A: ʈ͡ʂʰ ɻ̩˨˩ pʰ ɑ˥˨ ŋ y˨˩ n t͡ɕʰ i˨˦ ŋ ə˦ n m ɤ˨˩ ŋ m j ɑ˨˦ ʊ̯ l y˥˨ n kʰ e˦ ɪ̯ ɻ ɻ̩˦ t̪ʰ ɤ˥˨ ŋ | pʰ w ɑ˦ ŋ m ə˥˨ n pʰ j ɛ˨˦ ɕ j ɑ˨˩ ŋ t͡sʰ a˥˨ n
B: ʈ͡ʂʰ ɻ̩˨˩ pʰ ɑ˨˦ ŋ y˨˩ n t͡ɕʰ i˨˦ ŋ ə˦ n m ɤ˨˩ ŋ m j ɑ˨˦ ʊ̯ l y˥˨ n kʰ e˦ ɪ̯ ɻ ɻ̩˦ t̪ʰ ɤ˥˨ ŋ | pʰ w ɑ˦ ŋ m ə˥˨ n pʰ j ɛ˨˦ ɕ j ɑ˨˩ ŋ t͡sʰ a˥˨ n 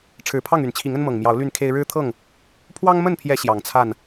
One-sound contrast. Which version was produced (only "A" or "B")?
A